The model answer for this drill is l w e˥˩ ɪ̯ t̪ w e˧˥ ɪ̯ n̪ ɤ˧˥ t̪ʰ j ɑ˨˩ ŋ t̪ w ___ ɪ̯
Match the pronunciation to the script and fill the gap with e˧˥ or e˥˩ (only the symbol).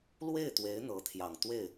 e˥˩